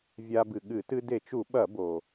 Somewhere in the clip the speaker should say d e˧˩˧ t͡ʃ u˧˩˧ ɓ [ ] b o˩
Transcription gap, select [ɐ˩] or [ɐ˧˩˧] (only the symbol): ɐ˧˩˧